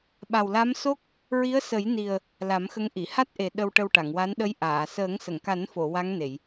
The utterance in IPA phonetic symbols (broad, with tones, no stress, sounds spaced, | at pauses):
ɓ a˨˩ w l a˧˥ m s o˦˥ k̚ | ɹ i˧˥ ə̯ s ə˨˩˦ j n i˨˩ ə̯ | l a˨˩˦ m x ə˧˥ ŋ ʔ i˨˩˨ h a˦˥ t̚ ʔ e˨˩ ɗ ə˧ w ʈ ə˧ w ʈ a˨˩˨ ŋ w a˧˥ n ɗ ə˧˥ j ʔ aː˨˩˨ s əː˨˩˦ ŋ s ə˨˩˨ ŋ k a˨˩˦ n f o˨˩˨ w a˧˥ ŋ n e˨˩˨ j